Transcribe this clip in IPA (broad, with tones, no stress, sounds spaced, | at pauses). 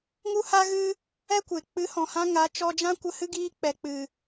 ŋ u˦ h a˦ ɣ ɨ˦ | ɛ˦ kʷ e˨ k͡p ɨ˨˦ h ɔ̃˨ h ã˧ ŋ a˨˦ t͡ʃ ɔ˧ d͡ʒ ã˦ kʷ ə˧ h ɨ˦ ɡ iː˧ k͡p ɛ˨ k͡p ɨ˨